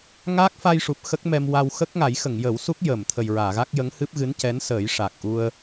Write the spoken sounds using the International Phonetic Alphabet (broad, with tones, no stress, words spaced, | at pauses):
ŋa˦˥k̚ fa˧jʂu˨˩p̚ xə˦˥k̚ mɛ˧mwa˧w xə˦˥k̚ŋa˨˩˦jxə˨˩˨ŋ jə˨˩˦wsu˦˥k̚jəː˨˩˨mt̪ʰə˨˩j ɹaː˨˩˨ɣa˦˥k̚ jə˧˥ŋhɨ˦˥p̚ ɣɨ˧˥ncɛ˧˥nsəː˨˩˦j ʂa˨˩k̚ʔu˧ə̯